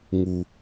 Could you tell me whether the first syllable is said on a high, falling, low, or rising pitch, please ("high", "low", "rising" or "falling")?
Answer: low